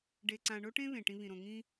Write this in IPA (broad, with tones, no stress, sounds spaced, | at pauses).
ɖ e˨ ǀ ã˨ ɳ o˦ ʈ ẽ˦ β ẽ˨ ʈ ĩ˦ β ĩ˨ ɾ õ˨ ŋ ĩ˦